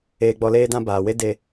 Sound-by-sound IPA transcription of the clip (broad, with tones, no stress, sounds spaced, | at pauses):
eː˧ ɡ͡b ɔ˧ l eː˦ d ã˦ b aː˨ w e˦ d e˧